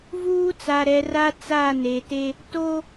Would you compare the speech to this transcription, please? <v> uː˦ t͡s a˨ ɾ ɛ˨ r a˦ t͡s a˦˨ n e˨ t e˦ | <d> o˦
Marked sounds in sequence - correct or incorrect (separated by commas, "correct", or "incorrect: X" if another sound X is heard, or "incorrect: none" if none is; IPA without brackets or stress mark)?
correct, incorrect: t